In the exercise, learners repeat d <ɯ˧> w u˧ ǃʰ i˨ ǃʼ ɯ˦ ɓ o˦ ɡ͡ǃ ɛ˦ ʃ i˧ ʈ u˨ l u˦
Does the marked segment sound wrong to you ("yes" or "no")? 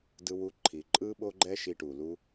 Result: no